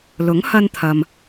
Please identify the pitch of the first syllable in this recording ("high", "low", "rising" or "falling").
rising